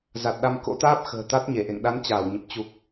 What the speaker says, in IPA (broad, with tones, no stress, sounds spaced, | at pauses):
z a˨˩ t̚ ɗ a˧ m k o̰˧˥ t̪ aː˦˥ p̚ x ə̤ː˨˩ t̪ a˦˥ t̚ ɲ e˧˩ ʔ ḛ˧˨ ŋ ɗ a˨˦ n t͡ɕ aː˧˩ w ɲ ə˨˩ p̚ t͡ɕ u˨˩ k̚